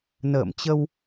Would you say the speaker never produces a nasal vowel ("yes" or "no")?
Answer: yes